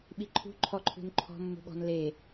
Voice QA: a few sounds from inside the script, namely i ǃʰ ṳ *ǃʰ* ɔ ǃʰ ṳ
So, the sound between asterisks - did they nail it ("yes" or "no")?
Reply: yes